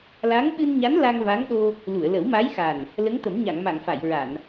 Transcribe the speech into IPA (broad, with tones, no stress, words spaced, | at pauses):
la˧˥ŋɓɨ˧nɲa˧˥n la˧ŋva˧˥ŋɗo˧ | lu˨˩˨ə̯lə˨˩˦wma˧˥jxa˨˩n | lə˧˥ŋt̪ə˨˩˦mɲa˨˩˨ŋma˨˩˨ŋ fa˨˩˨jɹa˨˩˨n